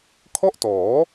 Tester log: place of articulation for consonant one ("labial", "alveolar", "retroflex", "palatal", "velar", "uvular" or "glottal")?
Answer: velar